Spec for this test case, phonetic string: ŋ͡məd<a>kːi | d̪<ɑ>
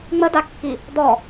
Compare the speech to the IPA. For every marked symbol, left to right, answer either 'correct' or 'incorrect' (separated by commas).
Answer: correct, incorrect